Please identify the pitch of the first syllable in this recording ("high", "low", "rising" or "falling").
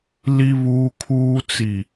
high